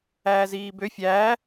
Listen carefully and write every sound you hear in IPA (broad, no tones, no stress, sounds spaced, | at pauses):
æː z iː b ø fʲ æː